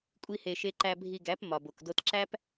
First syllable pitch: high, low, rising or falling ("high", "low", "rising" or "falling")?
high